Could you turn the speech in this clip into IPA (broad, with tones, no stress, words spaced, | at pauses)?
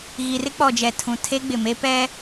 ɣi˨rɪ˦k͡pɔ˨d͡ʒɛ˨ tʰũ˨ tʰe˦ɡ͡bɪ˨me˦ pɛ˦